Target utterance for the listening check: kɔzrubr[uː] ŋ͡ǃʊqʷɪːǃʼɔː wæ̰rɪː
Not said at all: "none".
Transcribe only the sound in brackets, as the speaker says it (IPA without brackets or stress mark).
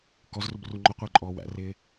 u